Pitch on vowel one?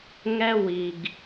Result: high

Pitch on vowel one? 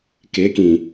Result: rising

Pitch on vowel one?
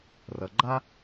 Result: low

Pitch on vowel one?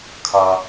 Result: high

